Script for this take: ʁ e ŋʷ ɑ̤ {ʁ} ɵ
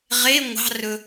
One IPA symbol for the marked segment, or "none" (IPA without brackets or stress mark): r